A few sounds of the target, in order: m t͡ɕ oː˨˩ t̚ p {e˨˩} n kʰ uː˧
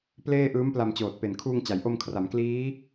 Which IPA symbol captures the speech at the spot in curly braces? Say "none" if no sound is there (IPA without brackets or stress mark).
e˨˩